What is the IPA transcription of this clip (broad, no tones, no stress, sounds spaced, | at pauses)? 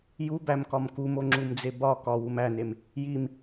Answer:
j u b æ m k ɒ m k u m o ŋ͡ǁ u m d͡z e b ɒ k ɒ w u m æ n e m | j i m